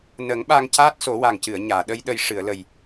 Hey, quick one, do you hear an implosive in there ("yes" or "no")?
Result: yes